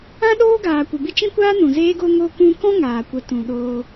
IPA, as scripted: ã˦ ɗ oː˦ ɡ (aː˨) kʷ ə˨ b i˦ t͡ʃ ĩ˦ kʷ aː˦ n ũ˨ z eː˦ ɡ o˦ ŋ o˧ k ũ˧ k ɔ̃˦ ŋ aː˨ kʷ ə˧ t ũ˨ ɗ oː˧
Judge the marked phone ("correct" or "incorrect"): correct